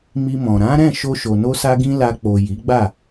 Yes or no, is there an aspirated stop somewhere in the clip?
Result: no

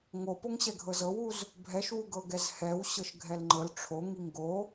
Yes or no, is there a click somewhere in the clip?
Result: yes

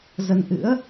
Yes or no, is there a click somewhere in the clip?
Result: no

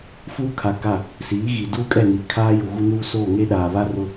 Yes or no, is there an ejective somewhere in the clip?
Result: yes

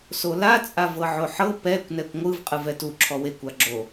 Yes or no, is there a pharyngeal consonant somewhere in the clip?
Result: yes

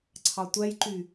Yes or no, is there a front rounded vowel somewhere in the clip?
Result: yes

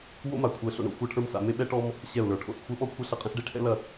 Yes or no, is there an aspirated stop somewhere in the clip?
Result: yes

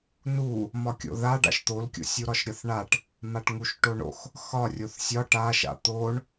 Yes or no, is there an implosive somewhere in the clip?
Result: no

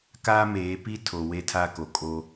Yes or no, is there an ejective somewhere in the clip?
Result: yes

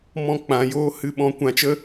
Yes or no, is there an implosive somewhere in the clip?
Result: yes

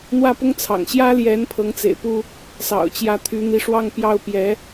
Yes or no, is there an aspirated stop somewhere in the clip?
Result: yes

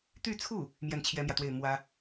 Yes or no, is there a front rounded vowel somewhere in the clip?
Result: yes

